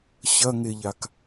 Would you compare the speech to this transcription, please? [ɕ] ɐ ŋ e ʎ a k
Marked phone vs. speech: correct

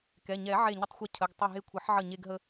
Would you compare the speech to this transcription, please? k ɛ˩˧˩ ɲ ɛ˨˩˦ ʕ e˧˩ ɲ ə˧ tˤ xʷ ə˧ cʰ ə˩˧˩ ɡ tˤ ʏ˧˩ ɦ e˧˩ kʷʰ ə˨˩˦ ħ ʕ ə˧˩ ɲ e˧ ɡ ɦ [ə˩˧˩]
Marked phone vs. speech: incorrect: ə˧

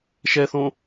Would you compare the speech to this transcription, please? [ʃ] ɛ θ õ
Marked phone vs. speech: correct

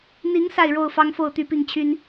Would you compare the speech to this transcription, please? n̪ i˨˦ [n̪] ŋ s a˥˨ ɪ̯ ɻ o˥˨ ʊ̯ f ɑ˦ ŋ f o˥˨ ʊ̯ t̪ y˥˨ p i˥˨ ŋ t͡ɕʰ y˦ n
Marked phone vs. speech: incorrect: none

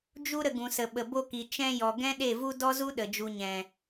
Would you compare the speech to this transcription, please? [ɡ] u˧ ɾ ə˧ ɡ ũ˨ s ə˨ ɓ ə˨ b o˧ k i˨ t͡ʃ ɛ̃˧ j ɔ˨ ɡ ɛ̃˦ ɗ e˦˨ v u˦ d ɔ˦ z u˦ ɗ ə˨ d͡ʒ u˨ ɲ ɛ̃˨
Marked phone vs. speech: incorrect: d͡ʒ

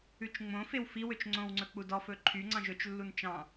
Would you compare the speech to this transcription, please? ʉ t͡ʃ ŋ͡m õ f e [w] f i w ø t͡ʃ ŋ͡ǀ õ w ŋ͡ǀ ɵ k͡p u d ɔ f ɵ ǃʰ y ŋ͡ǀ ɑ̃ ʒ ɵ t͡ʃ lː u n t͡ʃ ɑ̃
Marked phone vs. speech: correct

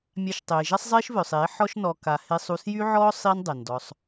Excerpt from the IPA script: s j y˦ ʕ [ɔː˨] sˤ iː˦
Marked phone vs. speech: incorrect: ɔː˦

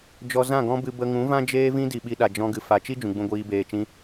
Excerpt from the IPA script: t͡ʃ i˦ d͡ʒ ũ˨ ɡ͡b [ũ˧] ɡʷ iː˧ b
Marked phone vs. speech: correct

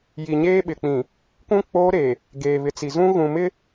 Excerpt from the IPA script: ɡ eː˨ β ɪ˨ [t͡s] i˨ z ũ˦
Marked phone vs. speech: correct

